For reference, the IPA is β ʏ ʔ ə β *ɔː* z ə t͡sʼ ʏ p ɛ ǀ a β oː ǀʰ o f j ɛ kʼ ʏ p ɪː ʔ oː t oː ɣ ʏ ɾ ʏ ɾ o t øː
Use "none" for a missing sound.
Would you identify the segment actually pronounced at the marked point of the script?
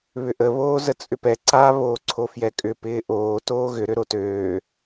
oː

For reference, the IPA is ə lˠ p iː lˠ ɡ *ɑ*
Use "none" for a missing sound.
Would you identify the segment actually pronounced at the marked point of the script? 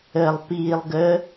ə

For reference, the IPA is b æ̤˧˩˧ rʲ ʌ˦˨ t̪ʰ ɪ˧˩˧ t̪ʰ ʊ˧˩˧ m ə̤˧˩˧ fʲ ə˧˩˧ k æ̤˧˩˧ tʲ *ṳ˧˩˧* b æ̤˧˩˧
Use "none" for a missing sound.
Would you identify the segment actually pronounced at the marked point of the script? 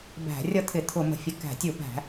u˧˩˧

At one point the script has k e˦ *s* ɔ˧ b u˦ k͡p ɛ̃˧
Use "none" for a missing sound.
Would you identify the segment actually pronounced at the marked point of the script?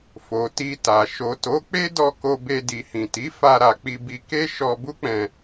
ʃ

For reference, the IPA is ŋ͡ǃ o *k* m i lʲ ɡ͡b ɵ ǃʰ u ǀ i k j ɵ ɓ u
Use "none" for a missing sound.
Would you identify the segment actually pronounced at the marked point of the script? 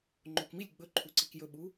k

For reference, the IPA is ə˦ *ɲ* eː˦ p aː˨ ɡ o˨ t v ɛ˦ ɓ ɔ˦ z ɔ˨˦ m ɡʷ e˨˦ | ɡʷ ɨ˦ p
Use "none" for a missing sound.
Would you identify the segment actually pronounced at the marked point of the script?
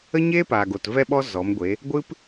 ɲ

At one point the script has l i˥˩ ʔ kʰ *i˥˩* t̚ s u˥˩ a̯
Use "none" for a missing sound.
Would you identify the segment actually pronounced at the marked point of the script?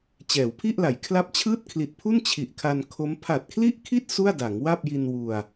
i˥˩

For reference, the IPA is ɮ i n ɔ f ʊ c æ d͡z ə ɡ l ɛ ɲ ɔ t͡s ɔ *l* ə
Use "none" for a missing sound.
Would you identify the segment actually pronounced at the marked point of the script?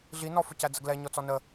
n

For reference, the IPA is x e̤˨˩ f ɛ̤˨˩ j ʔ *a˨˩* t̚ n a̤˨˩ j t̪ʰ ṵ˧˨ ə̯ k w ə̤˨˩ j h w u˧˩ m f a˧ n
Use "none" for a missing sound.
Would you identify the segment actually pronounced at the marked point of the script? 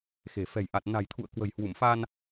a˨˩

